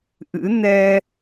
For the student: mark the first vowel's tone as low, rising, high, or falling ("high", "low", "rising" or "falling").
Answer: rising